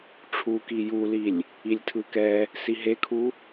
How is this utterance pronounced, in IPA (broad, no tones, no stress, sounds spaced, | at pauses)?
ʈ͡ʂʰ u k i j u l i lʲ | i lʲ tʰ ɯ k ɛ | s i ɦ e kʰ u